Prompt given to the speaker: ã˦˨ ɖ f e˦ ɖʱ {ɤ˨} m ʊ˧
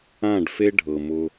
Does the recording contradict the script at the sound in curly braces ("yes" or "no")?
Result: no